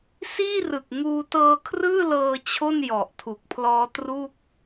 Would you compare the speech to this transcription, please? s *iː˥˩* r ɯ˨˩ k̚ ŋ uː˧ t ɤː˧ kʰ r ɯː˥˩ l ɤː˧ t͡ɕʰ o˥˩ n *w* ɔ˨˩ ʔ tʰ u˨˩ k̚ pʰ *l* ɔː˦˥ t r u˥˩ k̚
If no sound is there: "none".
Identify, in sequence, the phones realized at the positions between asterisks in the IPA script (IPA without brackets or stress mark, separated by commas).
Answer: iː˥˩, j, l